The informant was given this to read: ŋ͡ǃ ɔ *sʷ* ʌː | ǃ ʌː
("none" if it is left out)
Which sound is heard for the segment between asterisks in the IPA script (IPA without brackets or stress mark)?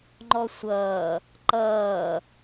sʷ